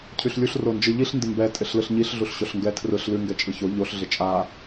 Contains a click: no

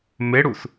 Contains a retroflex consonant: yes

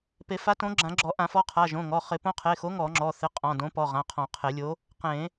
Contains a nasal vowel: yes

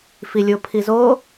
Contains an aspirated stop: yes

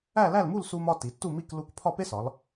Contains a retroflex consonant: no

